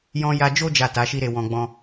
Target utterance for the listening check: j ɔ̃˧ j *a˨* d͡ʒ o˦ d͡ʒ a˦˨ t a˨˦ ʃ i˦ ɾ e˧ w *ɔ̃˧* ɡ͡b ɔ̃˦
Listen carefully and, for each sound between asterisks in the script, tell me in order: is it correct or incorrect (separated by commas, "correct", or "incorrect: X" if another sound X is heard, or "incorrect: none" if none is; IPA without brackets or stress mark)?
incorrect: a˧, correct